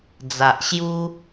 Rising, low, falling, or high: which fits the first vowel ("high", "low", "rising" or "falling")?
low